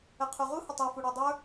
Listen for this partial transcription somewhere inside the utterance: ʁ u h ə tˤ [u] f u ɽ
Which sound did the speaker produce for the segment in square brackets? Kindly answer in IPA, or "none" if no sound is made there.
u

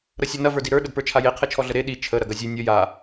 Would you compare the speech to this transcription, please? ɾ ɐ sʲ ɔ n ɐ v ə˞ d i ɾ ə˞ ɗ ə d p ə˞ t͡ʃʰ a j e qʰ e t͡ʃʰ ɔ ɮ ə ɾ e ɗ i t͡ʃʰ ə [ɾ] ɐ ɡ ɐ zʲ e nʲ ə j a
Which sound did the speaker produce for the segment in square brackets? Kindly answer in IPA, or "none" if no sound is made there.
ɾ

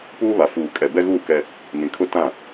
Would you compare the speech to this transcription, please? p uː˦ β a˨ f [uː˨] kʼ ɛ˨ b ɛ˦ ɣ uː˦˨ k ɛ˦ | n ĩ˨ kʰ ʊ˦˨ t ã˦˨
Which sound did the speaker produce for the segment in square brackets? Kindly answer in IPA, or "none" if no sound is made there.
uː˨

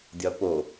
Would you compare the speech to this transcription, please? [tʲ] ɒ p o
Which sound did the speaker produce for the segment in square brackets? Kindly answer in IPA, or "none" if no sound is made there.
dʲ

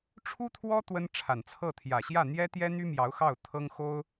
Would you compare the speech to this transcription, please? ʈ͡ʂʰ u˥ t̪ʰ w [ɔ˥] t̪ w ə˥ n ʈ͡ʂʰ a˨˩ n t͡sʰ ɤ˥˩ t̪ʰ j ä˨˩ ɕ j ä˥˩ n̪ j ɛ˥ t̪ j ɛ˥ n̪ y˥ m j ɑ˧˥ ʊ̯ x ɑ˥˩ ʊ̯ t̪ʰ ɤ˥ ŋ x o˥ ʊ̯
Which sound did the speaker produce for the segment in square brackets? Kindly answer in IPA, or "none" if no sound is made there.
ɔ˥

